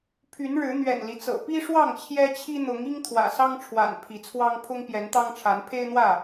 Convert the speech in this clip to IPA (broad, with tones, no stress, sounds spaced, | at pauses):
pʰ y˨˦ n ɻ ɻ̩˨˦ n̪ ɥ ɛ̰˨˩ n l i˦ t͡s ɤ̰˨˩ p i˦ ʂ w ɑ˥˨ ŋ t͡ɕʰ j ɛ˦ t͡ɕʰ i˦ n̪ ʊ˨˦ ŋ i˦ ŋ t̪ʰ w ä̰˨˩ s ɑ˦ ŋ ʈ͡ʂʰ w a̰˨˩ n pʰ i˨˦ t͡sʰ w ɑ˦ ŋ pʰ ʊ˦ ŋ p j ɛ˨˦ n t̪ ɑ˦ ŋ ʈ͡ʂʰ a˨˦ n pʰ e˦ ɪ̯ n̪ w ä˥˨